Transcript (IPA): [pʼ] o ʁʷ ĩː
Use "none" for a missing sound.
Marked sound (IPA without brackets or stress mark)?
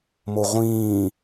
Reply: m